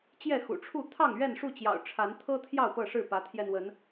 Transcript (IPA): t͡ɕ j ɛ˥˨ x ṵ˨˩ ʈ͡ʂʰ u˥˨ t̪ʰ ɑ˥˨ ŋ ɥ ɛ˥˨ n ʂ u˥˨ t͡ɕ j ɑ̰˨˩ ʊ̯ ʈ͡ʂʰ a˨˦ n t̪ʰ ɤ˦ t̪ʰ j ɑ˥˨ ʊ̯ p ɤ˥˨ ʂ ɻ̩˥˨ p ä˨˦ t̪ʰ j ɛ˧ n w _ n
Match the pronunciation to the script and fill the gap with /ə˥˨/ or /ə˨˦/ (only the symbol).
ə˨˦